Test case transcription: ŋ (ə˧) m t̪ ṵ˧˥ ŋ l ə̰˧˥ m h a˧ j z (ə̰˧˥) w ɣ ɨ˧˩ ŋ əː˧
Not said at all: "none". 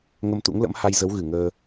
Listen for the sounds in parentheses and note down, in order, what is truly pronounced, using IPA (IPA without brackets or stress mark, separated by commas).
ə˧, ə˨˦